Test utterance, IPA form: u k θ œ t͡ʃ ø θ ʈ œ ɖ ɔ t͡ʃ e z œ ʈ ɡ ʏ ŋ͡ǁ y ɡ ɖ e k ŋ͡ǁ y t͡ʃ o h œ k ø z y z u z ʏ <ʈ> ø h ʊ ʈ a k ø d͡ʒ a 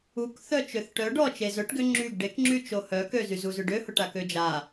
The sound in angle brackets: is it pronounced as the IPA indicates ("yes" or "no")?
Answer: no